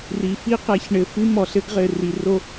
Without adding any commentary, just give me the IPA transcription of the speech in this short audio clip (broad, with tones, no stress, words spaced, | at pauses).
ri˨ fi˦qɛ˨çɳɘ˨ fɨ˦mɔ˨ɬɘ˦ɡʁɘ˨ ri˨ro˦